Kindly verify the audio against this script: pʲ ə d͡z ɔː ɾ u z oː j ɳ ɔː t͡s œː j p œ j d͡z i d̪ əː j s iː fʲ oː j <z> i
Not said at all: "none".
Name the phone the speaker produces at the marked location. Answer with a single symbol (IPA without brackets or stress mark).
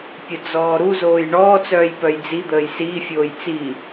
t͡s